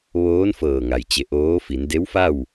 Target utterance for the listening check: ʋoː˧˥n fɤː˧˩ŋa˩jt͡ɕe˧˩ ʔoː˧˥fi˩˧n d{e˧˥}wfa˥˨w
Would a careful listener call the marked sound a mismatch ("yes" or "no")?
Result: no